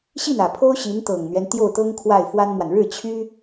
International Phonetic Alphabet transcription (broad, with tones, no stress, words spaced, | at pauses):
ɕi˥˩nä˨˩pʰo˥ʊ̯ ɕi˧˥nt̪ɤ˨˩ŋn̪ɥɛ˦n t̪jo˥˩ʊ̯t̪ɤ˥ŋ kʰwa˥˩ɪ̯fwa˥nmwa˨n ɻɻ̩˥˩t͡ɕʰy˥